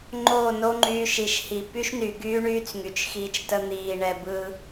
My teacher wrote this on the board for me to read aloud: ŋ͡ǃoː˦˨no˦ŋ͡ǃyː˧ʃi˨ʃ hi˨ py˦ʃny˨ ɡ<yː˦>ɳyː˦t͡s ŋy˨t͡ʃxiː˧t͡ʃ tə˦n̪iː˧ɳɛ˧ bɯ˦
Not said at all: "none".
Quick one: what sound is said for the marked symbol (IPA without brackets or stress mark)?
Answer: yː˦